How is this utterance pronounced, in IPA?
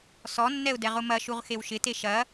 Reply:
sɔnːɛʊ̯dɛ ʁʊmɐʃuʁxew ʃɪte ʃɐ

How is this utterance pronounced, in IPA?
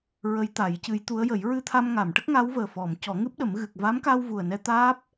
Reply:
ɹə˧˥jt̪a˨˩˦jcɨ˧˥jt̪u˧˥ə̯ jə˨˩˦jɹɨ˧t̪ʰa˧m ŋa˨˩˨m ʈə˦˥k̚ŋa˧˥wvəː˨˩ fɔ˨˩˨m cɔ˨˩˦ŋɨ˦˥p̚ɗə˨˩˦m ɣɨ˨˩k̚va˧˥mka˧w vu˨˩ə̯ nɛ˧t̪aː˦˥p̚

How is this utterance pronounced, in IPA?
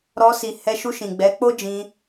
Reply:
ɾɔ˧si˨hɛ˧ʃu˧ ʃĩ˨ɡ͡bɛ˨˦ k͡po˦d͡ʒĩ˧

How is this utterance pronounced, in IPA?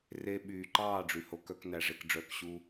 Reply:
re˧ɓyː˨ǃɑː˦˨ ɖ͡ʐy˨ho˧k œ˦knæ˧ ʐe˨kɖ͡ʐœː˨kɕu˧

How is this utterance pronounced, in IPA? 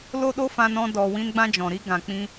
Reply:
lo˦ɗo˦fã˧nɔ̃˧ dɔ˨ wĩ˧nɡ͡bã˧d͡ʒɔ̃˨ɾi˧ ɡã˨k͡pĩ˧

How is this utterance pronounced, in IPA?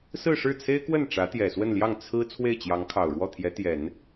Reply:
sɹ̩˥˧ʂɻ̩˥˩t͡sʰe˥ɪ̯kwə˥˩n ʈ͡ʂä˧˥t̪jɛ˨˩swə˥˧nljɑ˥˩ŋ t͡sʰɹ̩˥ t͡sʰwe˥˩ɪ̯t͡ɕjɑ˧˥ŋ kʰɑ˨˩ʊ̯ɻwɔ˥˩ t̪ʰjɛ˧˥t̪jɛ˨˩˦n

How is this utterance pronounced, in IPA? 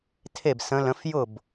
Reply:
tʰe˥˨bsə̃˧˥lə̃˧˥f jʊ˥˨b

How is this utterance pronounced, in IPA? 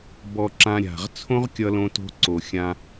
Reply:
bɔ˧ǁã˧ ɾʲa̤˨ʁ t͡sʰõ˦ʁkʲʌ˧lõ˧to̤˧ ǀo˨xʲã˧

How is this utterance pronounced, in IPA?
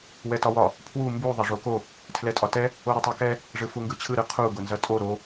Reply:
wɛtɒwɒ | pʰwu mbu ðˤɐʐoko | tʰlɛtʼɒtɛ | oɾʊtˤokɛ | ʐɯfuŋɡɯt͡ɕʰɯ ɾɯqʰu ɡʊnzɐtʼo ɾo

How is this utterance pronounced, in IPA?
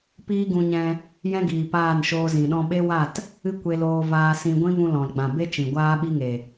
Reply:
piː˦ɡũ˧ɲɛ̃˧ | jɛ̃˦ɡiː˨ paː˦˨nʃoː˧zĩ˨ɗɔ̃˦ ɓe˦wa˦˨t | ɨ˦kʷe˧loː˧ vaː˧sĩ˧ ɡʷĩ˦vũ˧ lɔ̃˨lɡ͡bã˨be˦t͡ʃĩ˨ ɡʷaː˦ɓi˦ŋe˨

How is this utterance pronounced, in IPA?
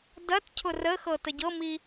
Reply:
dɐt cʰʊrəxɤ təɟɤmi

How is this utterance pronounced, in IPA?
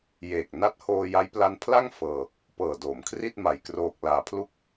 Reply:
jeː˨˩k̚ na˦˥t̚hoː˧ja˦˥j pla˧n pʰla˥˩ŋ fɤː˧ | pɤː˨˩doː˩˦m kʰri˥˩t̚ma˨˩jkroː˨˩k̚ laː˩˦pʰlu˦˥k̚

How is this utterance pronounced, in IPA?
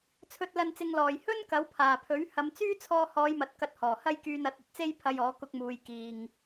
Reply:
t͡sʰɵ˨t̚lɐ˨nt͡sɪ˨ŋlɔː˨˩j hɵ˥n kɐ˨˥wpʰaː˨˩pʰɵ˨˥ɥ hɐ˨˧mt͡syː˥t͡sʰɔː˧ hɔː˨˧jmɐ˨t̚ kɐ˧t̚hɔː˨˩ hɐ˥jkyː˧nɐ˨˥t̚ ɐ˨t̚t͡se˥jpʰɐ˧jɔː˨˥ kʊ˧k̚muː˨j kiː˨ŋ

